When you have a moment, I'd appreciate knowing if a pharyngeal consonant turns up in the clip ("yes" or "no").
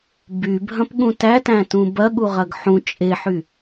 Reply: yes